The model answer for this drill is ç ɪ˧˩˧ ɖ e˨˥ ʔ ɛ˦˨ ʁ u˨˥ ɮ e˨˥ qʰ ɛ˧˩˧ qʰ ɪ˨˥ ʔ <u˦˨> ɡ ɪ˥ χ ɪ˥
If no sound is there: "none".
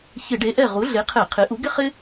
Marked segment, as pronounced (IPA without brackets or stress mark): u˨˥